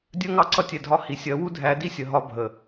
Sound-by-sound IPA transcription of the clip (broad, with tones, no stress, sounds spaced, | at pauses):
dʲ ɜ˦ ŋ ɑ˦ ǀ ʌ˦ tʲ ɛ˨ dʱ ɒ˦ h i˨ sʲ ɜ˨˦ w u˦ dʱ æ˨˦ d i˦ sʲ ə˨ ɦ ɒ˦ bʱ ə˨